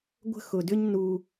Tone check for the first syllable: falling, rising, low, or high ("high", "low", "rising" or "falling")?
high